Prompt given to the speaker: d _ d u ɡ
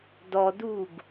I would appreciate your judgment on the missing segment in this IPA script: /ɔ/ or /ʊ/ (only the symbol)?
ɔ